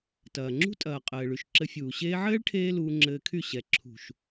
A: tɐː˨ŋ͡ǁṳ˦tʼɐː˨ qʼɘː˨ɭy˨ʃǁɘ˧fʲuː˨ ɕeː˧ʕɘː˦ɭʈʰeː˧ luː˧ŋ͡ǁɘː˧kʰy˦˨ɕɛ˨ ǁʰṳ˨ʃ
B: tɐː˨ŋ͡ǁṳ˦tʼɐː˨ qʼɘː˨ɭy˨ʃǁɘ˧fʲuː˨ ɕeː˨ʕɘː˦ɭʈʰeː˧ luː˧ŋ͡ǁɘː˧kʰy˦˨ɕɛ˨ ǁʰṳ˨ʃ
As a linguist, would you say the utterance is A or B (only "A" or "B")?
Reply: A